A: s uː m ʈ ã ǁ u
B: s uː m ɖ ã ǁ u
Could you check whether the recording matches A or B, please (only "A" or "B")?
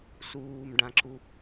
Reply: B